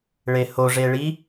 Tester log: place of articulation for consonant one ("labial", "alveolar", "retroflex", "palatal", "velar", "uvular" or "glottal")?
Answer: retroflex